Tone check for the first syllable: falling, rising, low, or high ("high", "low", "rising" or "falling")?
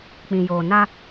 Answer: low